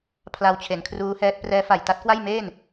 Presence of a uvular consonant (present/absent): absent